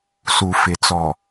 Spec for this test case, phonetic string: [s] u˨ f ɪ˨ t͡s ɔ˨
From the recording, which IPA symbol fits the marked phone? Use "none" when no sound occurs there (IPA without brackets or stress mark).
s